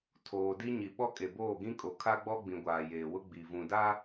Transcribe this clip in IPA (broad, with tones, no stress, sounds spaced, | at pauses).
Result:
tʰ oː˨ d i˦ ɲ i˨ ɓ ɔ˦ kʼ e˨ b oː˦˨ ɡ ĩ˦ kʼ o˨ kʰ a˦ ɡ͡b ɔ˦ ɡ͡b ĩ˨ ɡʷ aː˨ j eː˨ w ʊ˦ ɡ͡b i˨ v ũ˨ d a˦